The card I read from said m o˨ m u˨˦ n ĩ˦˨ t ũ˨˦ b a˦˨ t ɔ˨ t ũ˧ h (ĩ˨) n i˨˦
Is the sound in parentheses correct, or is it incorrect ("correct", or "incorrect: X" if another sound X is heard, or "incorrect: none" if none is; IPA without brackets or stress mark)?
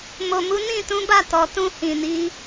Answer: correct